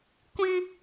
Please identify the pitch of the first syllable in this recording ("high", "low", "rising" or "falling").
high